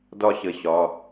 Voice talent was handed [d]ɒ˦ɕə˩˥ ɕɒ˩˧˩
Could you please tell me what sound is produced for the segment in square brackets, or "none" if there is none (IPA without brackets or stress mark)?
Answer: d